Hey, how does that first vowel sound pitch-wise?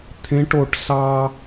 high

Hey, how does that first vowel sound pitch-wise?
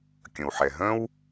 low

